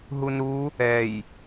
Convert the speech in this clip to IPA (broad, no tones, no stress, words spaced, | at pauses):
ɦunɾu | ɛj